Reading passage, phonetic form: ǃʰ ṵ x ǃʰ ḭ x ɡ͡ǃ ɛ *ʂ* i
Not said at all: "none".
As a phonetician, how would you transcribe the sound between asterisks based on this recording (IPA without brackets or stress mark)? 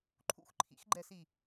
s